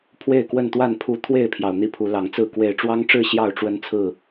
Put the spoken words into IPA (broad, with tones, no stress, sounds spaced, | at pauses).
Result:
pʰ w e˥˨ ɪ̯ k w ə˥˨ n t̪ w a˥˨ n pʰ u˦ t̪ʰ w e˥˨ ɪ̯ pʰ j ɑ˩ ʊ̯ n̪ i˥˨ pʰ u˨˦ l ɑ˨˦ ŋ t͡s ɹ̩˥˨ k w e˨˩ ɪ̯ ʈ͡ʂ w ɑ˦ ŋ ʈ͡ʂ ɻ̩˥˨ ɕ j ɑ˥˨ ʊ̯ ʈ͡ʂ w ə˦ n t͡sʰ ɹ̩˥˨